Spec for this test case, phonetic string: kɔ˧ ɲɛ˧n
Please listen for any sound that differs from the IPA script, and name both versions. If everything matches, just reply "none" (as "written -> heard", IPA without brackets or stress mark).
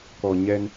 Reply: none